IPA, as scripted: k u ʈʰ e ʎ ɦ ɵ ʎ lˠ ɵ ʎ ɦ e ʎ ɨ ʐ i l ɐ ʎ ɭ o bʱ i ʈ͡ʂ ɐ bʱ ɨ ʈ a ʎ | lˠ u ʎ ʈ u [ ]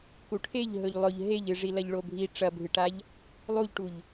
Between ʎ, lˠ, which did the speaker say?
ʎ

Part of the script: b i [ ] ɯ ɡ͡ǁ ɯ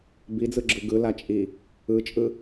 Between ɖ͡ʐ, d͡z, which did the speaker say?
d͡z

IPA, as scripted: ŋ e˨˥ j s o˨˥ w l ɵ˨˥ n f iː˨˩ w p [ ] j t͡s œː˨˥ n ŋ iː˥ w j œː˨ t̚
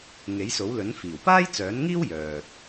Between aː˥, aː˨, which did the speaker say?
aː˥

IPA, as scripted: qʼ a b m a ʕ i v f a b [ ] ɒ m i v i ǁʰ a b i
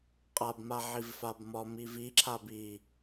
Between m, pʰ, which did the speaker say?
m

